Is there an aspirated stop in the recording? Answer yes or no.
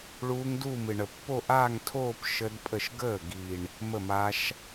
yes